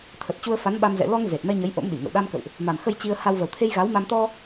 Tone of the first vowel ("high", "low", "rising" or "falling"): low